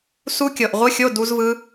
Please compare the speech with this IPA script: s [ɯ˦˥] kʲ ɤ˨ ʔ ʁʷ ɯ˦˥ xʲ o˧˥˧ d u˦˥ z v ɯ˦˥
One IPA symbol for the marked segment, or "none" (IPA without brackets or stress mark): u˦˥